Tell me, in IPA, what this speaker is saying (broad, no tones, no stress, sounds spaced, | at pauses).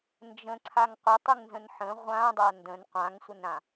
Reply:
n d͡ʒ ə̃ ǀʰ a ŋ qʷ ə tˤ ɨ ŋ n z ə̃ n ħ ə̃ ʁʷ ã dˤ a n d ə̃ n qʷ ã ŋ sʷ ə n ɾ ã